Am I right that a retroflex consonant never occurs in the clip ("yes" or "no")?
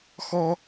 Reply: yes